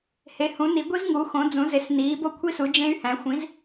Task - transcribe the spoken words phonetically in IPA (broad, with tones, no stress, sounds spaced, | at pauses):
h e˨˥ h ũ˨˥ n i˨˥ ɡʷ i˦˥ z ŋ u˨˥ x õ˨˥ d͡z ũ˨˥ z e˨˥ s n iː˨˥ b o˦˥ kʷʰ i˦˥ s u˨˥ d͡ʒ ẽ˦˥ y̯ h æ̃˨˥ xʷ ĩ˨˥ z